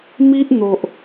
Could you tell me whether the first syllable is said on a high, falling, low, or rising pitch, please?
high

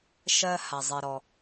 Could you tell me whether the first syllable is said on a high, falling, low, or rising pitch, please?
high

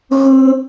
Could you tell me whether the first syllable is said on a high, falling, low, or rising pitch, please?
high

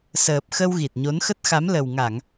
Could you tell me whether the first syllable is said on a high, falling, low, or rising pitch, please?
low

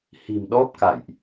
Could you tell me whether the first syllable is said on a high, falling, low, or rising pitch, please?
low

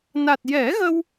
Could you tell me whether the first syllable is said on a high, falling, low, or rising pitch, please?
low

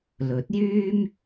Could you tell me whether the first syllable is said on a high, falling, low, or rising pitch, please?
rising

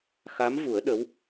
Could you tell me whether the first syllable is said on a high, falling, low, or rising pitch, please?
rising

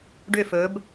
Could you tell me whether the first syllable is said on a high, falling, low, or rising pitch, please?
falling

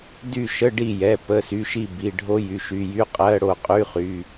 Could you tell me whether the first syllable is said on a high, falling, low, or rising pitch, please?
falling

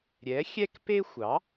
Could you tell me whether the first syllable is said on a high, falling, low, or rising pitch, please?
rising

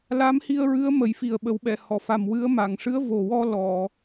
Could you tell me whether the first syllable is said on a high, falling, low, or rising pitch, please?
rising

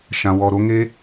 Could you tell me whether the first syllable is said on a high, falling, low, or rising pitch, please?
low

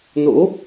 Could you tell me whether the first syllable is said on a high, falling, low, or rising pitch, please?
rising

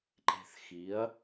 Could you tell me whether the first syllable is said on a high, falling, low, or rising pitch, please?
low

